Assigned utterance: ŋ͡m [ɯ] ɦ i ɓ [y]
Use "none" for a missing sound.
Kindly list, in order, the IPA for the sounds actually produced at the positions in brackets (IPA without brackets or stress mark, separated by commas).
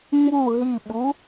u, u